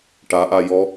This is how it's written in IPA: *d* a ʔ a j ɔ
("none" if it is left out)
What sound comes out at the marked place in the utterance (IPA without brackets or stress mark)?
ʈ